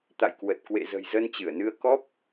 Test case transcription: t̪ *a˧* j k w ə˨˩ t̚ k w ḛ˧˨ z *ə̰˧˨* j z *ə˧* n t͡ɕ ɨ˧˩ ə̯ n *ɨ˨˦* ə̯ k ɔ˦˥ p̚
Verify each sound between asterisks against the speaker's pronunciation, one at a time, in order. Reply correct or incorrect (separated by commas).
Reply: incorrect, incorrect, correct, incorrect